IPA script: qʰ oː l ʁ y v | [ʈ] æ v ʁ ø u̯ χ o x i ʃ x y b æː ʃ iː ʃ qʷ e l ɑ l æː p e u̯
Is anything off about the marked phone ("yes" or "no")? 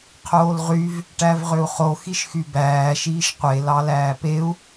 no